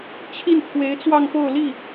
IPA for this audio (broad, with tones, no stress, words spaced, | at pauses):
t͡ɕʰi˥˩nt̪ʰwe˧˥ɪ̯t͡swɑ˥˧ŋpo˥˧ʊ̯ li˥˩